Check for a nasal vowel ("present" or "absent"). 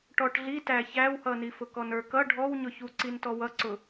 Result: absent